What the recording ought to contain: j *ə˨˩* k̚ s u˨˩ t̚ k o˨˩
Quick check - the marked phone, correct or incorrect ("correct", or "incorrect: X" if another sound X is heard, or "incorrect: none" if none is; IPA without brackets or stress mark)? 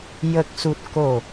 correct